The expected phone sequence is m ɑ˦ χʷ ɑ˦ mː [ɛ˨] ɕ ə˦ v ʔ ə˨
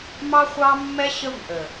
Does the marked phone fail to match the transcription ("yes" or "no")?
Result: yes